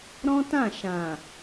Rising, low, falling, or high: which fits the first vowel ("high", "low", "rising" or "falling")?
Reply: high